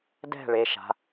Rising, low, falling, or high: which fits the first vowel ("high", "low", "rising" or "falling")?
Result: falling